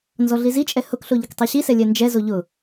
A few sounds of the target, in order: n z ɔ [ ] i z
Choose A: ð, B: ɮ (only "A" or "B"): B